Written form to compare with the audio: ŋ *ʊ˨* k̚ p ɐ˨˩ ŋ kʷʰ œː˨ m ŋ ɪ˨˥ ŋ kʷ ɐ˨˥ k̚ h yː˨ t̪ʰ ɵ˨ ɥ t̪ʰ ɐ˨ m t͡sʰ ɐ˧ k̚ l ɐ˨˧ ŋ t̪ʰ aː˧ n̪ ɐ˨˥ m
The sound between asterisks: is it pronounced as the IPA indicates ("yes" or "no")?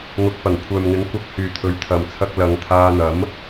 yes